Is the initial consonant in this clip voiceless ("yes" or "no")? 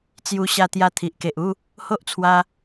yes